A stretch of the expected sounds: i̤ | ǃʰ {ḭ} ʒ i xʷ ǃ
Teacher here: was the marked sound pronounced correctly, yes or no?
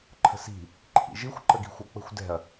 yes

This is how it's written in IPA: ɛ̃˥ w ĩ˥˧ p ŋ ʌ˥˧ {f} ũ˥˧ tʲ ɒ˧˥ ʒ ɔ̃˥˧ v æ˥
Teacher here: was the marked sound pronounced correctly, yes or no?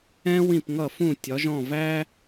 yes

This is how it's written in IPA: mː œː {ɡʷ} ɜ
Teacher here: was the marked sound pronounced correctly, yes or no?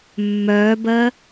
no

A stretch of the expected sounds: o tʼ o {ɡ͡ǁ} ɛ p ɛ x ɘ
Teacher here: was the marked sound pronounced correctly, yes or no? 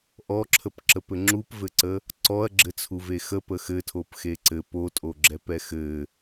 yes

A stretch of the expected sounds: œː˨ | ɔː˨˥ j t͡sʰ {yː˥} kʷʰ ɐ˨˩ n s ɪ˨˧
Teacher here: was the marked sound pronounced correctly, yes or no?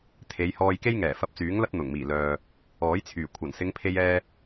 no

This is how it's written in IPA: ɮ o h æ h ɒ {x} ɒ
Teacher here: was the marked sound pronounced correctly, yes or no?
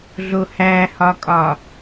no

